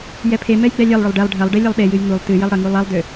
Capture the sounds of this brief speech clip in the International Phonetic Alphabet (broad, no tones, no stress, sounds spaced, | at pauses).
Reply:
j ɛ pʰ e m ɛ j ɡ͡b ɛ lʲ ɛ lˠ ɭ ʏ lˠ ɖ ɛ lˠ ɖʱ ɐ lˠ ɖ e lʲ ɐ lˠ ɗ e j ɨ j ŋ u lˠ t ɨ j ə lˠ ɽ ə ŋ u lˠ ɐ lˠ d ʏ